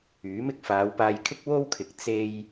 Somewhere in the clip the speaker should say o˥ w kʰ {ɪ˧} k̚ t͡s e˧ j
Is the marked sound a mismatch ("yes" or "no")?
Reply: yes